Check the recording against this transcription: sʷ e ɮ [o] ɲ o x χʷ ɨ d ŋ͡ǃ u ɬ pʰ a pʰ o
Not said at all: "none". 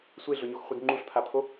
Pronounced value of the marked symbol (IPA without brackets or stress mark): ɵ